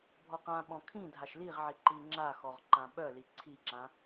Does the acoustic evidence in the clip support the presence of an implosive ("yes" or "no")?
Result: yes